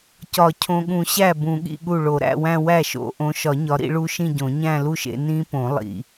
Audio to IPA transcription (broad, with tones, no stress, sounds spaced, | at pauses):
c ɒ˨˩˦ cʰ õ˨ ɠ ũ˨˩˦ ɕ æ˥˩ b ũ˨˩˦ ɠ ḭ˥˧ ɠ u˥˩ ɭ o˨˩˦ ɾ æ̰˥˧ w æ̃˥˧ w æ˥˩ ʃ o̰˨˦ ʔ õ˨˦ ʃ ɒ˨˩˦ ɲ ɒ˨˦ ɾ ḭ˨˦ ɭ u˦˥ ʃ ĩ˥˧ ɟ õ˨˩˦ ɲ æ̃˥˧ l u˥˧ ʃ ḛ˨˦ n ĩ˦˥ p õ˨˩˦ lˠ ḭ˨